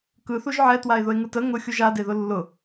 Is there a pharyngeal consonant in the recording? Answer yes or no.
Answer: yes